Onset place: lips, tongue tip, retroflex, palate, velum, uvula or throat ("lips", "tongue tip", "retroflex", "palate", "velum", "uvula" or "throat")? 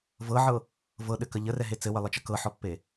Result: lips